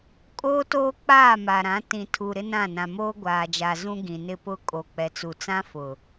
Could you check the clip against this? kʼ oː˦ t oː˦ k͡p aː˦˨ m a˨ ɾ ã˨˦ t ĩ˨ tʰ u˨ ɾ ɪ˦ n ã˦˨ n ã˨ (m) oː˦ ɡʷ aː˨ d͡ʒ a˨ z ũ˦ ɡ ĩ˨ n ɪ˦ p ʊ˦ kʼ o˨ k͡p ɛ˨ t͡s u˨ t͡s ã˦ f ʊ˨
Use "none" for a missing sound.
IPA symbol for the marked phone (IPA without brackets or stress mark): m